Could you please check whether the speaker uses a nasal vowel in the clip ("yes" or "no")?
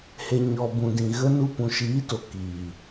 yes